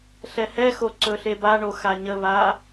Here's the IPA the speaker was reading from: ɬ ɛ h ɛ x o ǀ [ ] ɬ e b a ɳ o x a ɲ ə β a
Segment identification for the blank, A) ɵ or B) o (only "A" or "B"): A